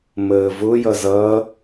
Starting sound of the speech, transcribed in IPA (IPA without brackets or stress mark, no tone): m